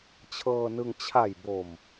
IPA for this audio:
t͡ɕʰ ɤː˧ n ɯ˧ ŋ t͡ɕʰ a˨˩ j b o˨˩ m

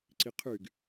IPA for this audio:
ǀ i qʰ y ɡ

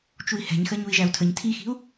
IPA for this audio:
t͡ʃ u i̯ h ɛ̤ ɲ x ɜ ɲ u i̯ ʒ æ u̯ tʰ ə ɲ tʰ i x i̤ u̯

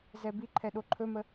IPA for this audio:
z ɛ b i ǃʰ ɛ ɗ o ǃʰ ɵ m ə

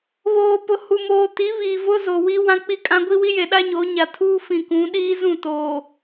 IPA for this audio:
β oː˨ p ʊ˨ h u˨ m oː˨ t i˨˦ β i˨ v ʊ˦ z o˨ w i˦ w ã˦ k͡p i˦ kʼ ã˦ ɡʷ i˦ w i˦ j e˨ ɗ a˦ ɲ o˨˦ ɲ a˨ tʰ uː˦ f ĩ˨ k ũ˨˦ ɗ iː˦ z ũ˦˨ t oː˨

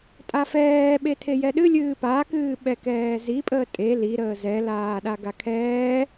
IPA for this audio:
tʼ a f ɛː ɓ e tʰ e j ɛ ɗ ɨ lʲ ɨː p a k ɨː ɓ ɛ k ɛː z i pʼ əː tʼ e l i ɾ əː z ɛ l aː ɗ a ɡ a kʰ ɛː

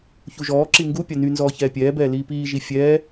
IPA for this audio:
ç u ʒ ɔː ǁ i ŋ ɡ u pʲ a n y n z ɔː ç ɛː pʲ ɛː b ɛː l iː p iː ʒ i fʲ ɛː

